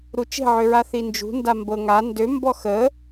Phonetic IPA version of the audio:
ɾ u t͡ʃ e̤ ʕ ø ɹ a θ i n d͡ʒ ṳ n d a m b ɤ ŋ a n d ø m b ɔ x ə

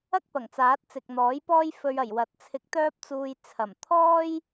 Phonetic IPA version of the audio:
ɐ˥ k̚ p ɐ˨˩ ŋ t͡s aː˨˥ t̚ t͡s ɪ˨ k̚ n̪ ɔː˨˥ j p ɔː˥ j f ɵ˧ ɥ ɐ˨˩ j w ɐ˨˥ t̚ t͡sʰ ɪ˧ k̚ t̪ œː˥ p̚ t͡s uː˧ j t͡sʰ ɐ˨˩ m t̪ʰ ɔː˥ j

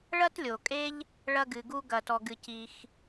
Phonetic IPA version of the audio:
ɭ ɐ˥ t lʲ o˩ kʼ e˦ ʎ | ɭ ɐ˥ ɡ ɨ˩ ɡ u˥ ɡ ɐ˨ t ɔ˨ ɡ ɨ˨ c i˨ x

